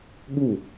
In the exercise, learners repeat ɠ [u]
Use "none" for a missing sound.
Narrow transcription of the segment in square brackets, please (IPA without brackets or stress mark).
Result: u